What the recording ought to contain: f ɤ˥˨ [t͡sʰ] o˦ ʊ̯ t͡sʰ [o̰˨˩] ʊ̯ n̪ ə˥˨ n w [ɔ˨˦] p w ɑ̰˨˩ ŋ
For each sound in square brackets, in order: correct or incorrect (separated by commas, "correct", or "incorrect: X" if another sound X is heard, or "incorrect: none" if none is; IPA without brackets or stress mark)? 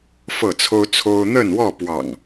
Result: correct, incorrect: o˦, incorrect: ɔ˥˨